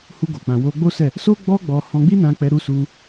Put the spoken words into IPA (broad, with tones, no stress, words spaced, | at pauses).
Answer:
hu˧ɡo˨k͡pã˨wo˧ ɡ͡bo˦sɛ˦˨ | so˦ ɡ͡bɔ˦ɡ͡bɔ˧ hɔ̃˧ɡ͡bi˦nã˧k͡pɛ˧ ɾu˧su˧